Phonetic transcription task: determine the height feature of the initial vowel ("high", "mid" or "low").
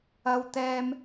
low